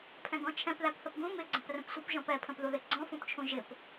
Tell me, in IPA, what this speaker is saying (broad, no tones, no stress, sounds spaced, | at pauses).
pʰ ɛ̃ ɡ ɔ̃ t͡ʃʰ ɛ̃ p ð æ p θ ə p ɡ ũ m ɪ ɡ͡ǀ ə̃ p r ə̃ p sʷ ə p ʒ ɔ̃ p ɛ pʰ ə̃ p ð u ð ɪ ɡ͡ǀ ɔ̃ f ũ p t͡ʃʰ ũ ʒ ɪ p